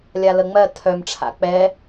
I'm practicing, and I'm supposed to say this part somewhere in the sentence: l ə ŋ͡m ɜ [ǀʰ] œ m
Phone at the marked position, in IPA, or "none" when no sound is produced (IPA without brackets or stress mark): tʰ